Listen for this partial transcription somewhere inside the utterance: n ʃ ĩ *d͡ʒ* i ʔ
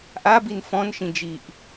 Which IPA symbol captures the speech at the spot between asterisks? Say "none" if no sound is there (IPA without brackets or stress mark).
d͡ʒ